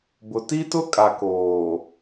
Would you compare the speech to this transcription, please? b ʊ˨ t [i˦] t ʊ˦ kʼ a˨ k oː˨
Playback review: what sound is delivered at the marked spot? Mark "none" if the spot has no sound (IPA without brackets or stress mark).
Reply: i˦